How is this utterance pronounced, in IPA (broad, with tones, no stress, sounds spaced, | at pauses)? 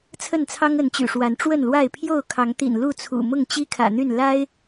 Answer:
t͡sʰ ə˥˨ n t͡sʰ ɑ˦ ŋ ə˨˦ n t͡ɕ y̰˨˩ ʂ w a˨˦ n ʈ͡ʂ w ə˥˨ n l w a˥˨ ɪ̯ pʰ j o˥˨ ʊ̯ kʰ ɑ˨˦ ŋ t̪ ḭ˨˩ n l u˥˨ t͡sʰ ṵ˨˩ m ʊ˥˨ ŋ t͡ɕ i˦ kʰ ä̰˨˩ n̪ y˥˨ n l a˦ ɪ̯